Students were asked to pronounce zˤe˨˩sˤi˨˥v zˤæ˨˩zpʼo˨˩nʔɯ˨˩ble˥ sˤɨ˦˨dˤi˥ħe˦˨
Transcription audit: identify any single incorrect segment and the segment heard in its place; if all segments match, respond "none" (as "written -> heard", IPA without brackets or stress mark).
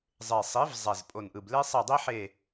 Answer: ɨ˦˨ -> e˦˨